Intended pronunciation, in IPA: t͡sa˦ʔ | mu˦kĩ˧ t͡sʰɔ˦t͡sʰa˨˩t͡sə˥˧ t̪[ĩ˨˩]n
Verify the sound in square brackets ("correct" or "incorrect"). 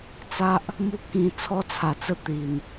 incorrect